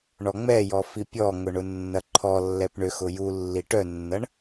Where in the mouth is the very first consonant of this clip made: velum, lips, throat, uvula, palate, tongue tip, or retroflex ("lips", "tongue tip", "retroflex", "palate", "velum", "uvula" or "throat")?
retroflex